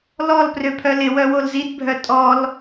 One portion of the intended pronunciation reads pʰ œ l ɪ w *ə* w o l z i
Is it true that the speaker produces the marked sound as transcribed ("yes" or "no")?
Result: no